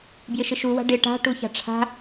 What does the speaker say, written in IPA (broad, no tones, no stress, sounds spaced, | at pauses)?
b j ɪ ʃ ɪ ʃ u w a̤ ɖ ɪ ʈ a̤ ʈ u ç a̤ ʈ͡ʂʰ a̤